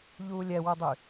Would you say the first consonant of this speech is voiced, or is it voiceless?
voiced